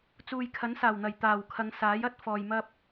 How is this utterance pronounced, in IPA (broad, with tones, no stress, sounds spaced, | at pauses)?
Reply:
t͡s uː˨ j kʰ ɐ˨˥ n s aː˨˩ w n̪ ɐ˨˩ j t̪ aː˨˩ w kʰ ɐ˨˧ ŋ s aː˨˥ j ɐ˥ t̚ f ɔː˨ j m ɐ˥ p̚